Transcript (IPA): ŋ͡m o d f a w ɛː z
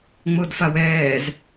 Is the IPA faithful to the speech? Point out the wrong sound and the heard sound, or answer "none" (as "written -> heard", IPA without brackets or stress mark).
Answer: none